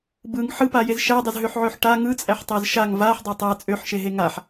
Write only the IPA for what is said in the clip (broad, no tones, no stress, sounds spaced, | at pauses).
b ɯ ŋ ħ ɯ p a j e z ʃ æ dˤ e z ɦ ø ħ ʕ ø ħ ʈ a ŋ ɯ t͡sʼ æ ħ tˤ æ z ʃ a ŋ v a ħ dˤ a tˤ a t͡sʼ ø ħ ʃ e ɦ e ŋ a ħ